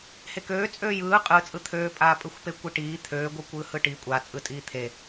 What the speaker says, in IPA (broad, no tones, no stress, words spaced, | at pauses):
hekøː t͡sʼøːjɯː qʼɯt͡sʼɯ t̪ʰøːpʼaːpʼɯxʷ pekʷiʈiː t̪ʰøːɡʷɯ kʷɯːhɯʈi kʷʼa t͡sʼɯtʼiːt̪ʰe